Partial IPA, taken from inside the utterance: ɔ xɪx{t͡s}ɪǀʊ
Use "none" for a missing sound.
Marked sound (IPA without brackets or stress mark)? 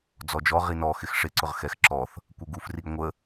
ʂ